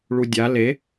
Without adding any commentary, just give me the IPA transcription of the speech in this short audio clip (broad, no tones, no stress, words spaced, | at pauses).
ɭudʲa le